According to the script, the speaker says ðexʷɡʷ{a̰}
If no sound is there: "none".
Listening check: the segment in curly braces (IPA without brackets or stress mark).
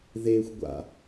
a̰